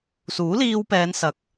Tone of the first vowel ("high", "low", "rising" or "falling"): rising